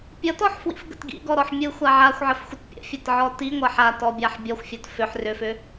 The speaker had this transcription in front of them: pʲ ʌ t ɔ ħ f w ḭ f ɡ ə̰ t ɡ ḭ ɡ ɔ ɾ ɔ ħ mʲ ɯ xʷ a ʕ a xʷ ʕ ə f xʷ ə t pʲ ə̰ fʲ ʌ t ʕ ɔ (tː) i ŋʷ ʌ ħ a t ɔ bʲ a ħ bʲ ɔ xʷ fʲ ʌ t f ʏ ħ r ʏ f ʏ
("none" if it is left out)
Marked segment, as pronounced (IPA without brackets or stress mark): t